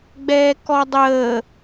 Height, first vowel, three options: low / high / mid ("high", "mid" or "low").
mid